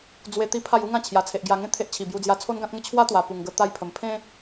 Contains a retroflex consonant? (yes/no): no